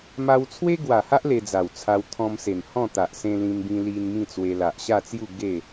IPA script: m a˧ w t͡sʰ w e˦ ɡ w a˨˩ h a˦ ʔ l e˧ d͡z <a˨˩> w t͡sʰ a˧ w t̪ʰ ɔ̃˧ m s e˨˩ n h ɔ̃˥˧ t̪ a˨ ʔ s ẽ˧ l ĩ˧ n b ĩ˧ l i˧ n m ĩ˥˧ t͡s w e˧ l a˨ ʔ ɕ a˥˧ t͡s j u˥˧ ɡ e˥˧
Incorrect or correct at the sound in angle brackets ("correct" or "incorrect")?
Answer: correct